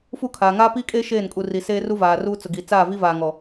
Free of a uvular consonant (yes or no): yes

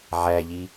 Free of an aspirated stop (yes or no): yes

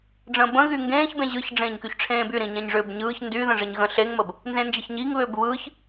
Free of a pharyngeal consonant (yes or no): yes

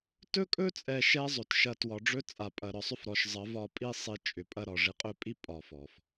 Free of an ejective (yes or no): no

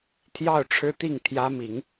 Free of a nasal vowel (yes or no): yes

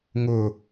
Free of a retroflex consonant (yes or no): yes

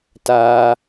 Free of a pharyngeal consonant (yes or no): yes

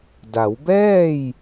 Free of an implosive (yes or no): yes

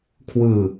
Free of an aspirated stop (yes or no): no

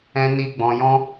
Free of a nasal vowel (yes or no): no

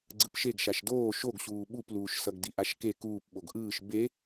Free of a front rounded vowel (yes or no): yes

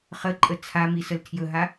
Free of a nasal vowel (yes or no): yes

